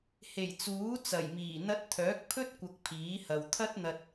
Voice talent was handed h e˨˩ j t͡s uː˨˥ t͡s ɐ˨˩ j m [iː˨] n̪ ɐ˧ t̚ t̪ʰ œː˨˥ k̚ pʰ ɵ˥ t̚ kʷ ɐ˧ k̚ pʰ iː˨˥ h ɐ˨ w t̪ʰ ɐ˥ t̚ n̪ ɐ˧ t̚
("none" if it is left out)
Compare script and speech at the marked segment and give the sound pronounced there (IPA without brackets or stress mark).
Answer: iː˨˩